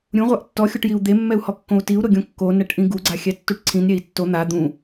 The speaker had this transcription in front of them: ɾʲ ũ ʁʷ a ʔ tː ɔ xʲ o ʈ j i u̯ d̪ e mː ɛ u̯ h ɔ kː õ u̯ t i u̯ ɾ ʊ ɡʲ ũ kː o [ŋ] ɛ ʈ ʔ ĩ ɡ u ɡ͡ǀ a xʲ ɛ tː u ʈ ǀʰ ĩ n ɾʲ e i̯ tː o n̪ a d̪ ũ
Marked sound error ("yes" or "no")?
yes